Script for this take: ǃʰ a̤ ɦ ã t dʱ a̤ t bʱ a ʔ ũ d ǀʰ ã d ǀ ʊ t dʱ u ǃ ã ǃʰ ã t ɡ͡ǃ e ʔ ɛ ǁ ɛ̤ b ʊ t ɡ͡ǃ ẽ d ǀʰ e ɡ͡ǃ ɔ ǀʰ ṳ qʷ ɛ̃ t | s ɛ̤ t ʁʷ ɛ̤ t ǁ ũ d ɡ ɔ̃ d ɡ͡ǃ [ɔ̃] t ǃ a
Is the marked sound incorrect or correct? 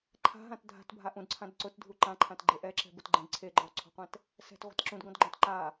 correct